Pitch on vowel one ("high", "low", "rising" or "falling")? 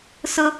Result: high